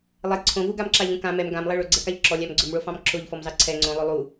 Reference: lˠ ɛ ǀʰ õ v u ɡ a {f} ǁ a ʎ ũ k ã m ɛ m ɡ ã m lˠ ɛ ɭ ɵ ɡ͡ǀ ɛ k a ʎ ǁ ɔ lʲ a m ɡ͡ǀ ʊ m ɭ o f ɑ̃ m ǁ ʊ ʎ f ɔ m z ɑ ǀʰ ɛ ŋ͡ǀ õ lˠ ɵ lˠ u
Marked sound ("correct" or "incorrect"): incorrect